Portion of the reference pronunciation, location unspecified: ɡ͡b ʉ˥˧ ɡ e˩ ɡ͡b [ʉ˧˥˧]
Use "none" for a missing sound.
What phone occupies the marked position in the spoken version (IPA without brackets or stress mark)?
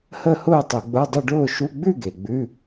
ʉ˧˥˧